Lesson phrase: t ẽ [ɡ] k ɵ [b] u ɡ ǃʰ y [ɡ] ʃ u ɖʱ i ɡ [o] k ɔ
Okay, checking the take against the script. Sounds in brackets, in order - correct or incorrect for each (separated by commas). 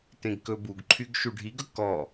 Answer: correct, correct, correct, incorrect